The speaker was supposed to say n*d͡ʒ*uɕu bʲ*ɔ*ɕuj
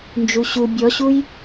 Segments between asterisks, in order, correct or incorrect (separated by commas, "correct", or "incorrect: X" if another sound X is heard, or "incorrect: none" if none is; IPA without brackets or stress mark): correct, correct